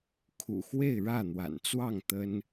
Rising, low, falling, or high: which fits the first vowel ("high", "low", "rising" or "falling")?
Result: low